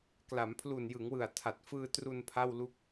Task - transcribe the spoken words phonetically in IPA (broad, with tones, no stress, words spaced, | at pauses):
kla˩˦mpʰlu˨˩njɯ˩˦ŋwɯ˨˩a̯ tʰa˨˩t̚fɯː˧tru˧n pʰa˥˩wlu˥˩k̚